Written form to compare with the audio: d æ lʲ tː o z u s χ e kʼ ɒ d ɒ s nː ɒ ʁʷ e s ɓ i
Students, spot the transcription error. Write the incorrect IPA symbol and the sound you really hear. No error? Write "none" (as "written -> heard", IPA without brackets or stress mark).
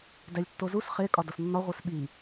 none